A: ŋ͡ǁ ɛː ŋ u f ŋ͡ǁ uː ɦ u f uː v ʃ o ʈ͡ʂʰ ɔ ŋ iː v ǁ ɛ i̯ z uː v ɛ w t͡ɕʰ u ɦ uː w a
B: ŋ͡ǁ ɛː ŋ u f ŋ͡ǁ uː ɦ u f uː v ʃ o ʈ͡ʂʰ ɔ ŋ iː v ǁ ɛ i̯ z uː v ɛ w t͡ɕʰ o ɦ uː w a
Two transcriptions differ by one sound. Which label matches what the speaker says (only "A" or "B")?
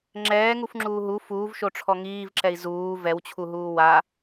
A